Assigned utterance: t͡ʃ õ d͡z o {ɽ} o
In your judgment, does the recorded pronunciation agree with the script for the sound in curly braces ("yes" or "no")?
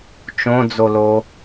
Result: no